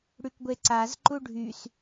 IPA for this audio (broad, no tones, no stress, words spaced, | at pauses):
ɽykɡʷeǀaz ǃuɖʱys